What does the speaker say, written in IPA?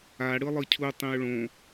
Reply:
a ɽɯlˠɯcʰu tˤĩʊ̯ɭõ

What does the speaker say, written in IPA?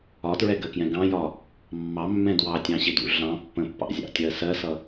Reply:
ɒtɹɛɡɜkjɛ̃ ɡɑ̃jɒ | mːɑmːɛ̃ dwɑtʲɑ̃ɕɪdṵ ɮɑ̃ pːə̃pːɑ̰zʲɑ̰tʲɜ sɜsʌ

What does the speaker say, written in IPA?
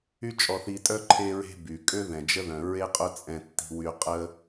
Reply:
y˥t͡ʃʼɔ˧θi˧tʼœ˥ ǃʰe˥ɹe̤˥ by˩ kʼø˥ ðɛ̃˩d͡ʒə˥ðœ̃˩ ɹe˥qʼʊ˥ t͡sʼɛ̃˧tːi̤˧wy˧qʼə˥

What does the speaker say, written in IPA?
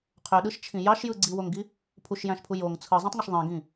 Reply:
qʰøɗɯʃt͡ʃʰĩ jɑʃjɯ ɡ͡ǀiwoŋɡi | pʰuʃjæ̃ʃpʰu joŋ t͡sʰɯzˤĩtˤŋɯʃ ðˤĩɡĩ

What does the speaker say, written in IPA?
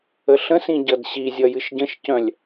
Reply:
əɬə̃sĩ ɟʌdɕizʲʌ jɨʃɟə̃ʃcœ̃lʲ

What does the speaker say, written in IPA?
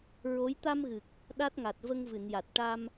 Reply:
ɹo˧˥j t̪a˧mɣɨ˨˩k̚ | ɗa˦˥t̚ŋa˨˩t̚ və˧ŋvɨ˨˩˨nja˨˩t̚ ʈa˧m

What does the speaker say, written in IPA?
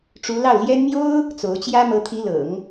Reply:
ʈ͡ʂu˧˥lɑ˥˩ʊ̯ljɛ˥n mjo˥ʊ̯ | t͡so˧˥ʊ̯t͡ɕjä˥ mɤ˧˥t̪ʰi˧˥lɤ̰˨˩˦ŋ

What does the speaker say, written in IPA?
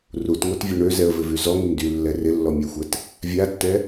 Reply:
rutŋotvʲø ɳøzɛə̯vɪvy zɔŋɪm dylːɛ rɪlːɔmʲaxʷɛt | vʲatːɛ

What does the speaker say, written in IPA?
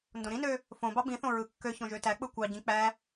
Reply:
ndõɾĩnø | fõ bɑbĩθõ ɹɯkːøçõ ʒøtæk͡pɯ kʷɑɟĩ k͡pæ

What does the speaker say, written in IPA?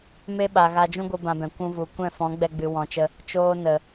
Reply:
me˦ɓa˨ ɣa˧d͡ʒũ˦ɡʷɨ˧ bã˧bɛ̃˨ kʷũ˧vu˨ kʷɛ̃˦˨fɔ̃˨˦ɡ͡bɛ˧ ɡ͡bɨ˨wɔ̃˨t͡ʃə˧ | t͡ʃoː˧nə˨

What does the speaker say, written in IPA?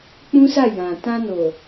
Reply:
k͡pũ˦sa˦˨ jã˨ tã˧no˨

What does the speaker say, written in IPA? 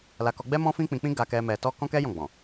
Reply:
la˧kɔ˧ɡ͡bɛ˦ mɔ̃˦fĩ˦k͡pĩ˧k͡pĩ˦ ɡa˧kɛ˧ mɛ˧tɔ˦ kɔ̃˦kɛ˦ jɔ̃˦˨ɡ͡bɔ̃˨

